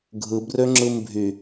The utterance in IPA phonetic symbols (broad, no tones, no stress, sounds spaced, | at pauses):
ɡʱ ɯ b r ø ŋ͡ǁ ɯ m bʱ y